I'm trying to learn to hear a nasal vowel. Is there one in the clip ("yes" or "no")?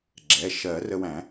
yes